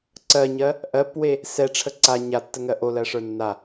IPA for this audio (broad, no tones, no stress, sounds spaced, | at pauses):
ǀ ɜ ɲ ɜ | ʔ ɜ p w e | s ɛ ʈ͡ʂʰ ə ǀ a ɲ a tː ə ŋ ɜ ʔ o l ɜ ʂ ə˞ nː a